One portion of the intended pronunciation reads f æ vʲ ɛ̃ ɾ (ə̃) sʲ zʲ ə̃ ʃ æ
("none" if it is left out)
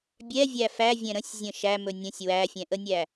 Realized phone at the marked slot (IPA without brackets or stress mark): ə̃